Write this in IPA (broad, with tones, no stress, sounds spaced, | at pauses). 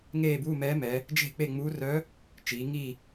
ŋ eː˦˨ b uː˧˥˧ m ɛː˧˥ m ɛ˩˧ | d͡ʒ e̤˦˨ k͡p e˦˨ ŋ͡m uː˧˥ r œ˧˥ | t͡ʃ iː˩˧ ŋ i˦˨